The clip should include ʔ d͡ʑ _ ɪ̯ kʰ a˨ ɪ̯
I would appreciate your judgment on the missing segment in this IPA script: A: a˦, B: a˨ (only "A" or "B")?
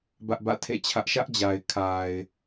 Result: B